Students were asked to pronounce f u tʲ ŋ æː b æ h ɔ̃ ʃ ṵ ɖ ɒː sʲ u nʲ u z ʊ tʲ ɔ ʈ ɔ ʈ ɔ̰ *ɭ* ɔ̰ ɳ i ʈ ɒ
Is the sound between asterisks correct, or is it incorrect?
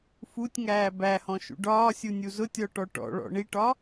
correct